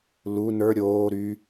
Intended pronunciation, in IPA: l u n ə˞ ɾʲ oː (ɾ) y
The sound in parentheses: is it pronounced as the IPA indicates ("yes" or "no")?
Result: yes